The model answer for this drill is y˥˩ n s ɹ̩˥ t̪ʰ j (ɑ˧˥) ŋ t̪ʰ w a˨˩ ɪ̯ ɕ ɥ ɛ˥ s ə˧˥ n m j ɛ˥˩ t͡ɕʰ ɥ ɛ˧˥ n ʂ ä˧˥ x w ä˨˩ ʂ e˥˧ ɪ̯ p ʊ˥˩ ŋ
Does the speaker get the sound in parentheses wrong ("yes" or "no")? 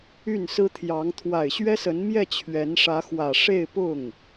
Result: no